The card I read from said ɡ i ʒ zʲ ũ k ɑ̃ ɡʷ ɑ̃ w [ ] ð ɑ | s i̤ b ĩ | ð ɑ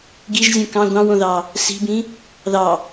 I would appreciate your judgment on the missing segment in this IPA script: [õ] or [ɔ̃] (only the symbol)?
õ